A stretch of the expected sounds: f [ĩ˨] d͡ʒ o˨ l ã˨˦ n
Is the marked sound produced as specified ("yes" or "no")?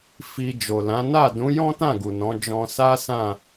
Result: no